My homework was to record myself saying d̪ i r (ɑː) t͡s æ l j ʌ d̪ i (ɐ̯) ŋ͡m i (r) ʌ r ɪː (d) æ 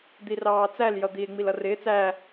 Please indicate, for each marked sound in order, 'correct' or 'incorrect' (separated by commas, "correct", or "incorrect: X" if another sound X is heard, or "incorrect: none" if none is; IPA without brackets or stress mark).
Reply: correct, incorrect: e̯, incorrect: l, incorrect: t͡s